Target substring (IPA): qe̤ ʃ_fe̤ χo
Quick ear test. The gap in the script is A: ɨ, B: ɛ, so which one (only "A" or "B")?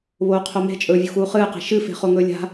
A